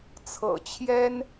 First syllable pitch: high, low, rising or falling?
low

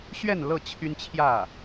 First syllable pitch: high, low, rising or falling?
falling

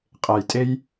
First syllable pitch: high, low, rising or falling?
low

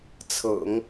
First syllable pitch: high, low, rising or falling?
low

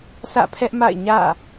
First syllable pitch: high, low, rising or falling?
falling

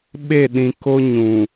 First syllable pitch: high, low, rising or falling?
falling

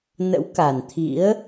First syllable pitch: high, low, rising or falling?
rising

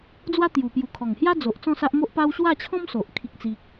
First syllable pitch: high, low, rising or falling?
high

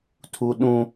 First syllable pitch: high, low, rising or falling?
high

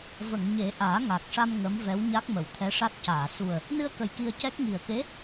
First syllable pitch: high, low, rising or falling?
low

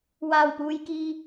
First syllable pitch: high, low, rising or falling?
low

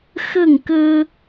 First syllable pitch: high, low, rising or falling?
falling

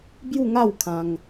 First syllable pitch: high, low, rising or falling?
falling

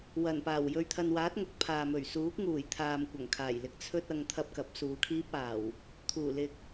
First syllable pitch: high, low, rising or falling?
low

